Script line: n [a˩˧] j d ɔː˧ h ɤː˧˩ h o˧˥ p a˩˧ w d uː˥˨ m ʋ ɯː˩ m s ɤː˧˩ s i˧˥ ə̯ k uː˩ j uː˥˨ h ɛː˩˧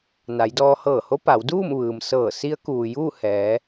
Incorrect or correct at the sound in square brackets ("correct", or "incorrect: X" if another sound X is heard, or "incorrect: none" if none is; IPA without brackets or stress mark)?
correct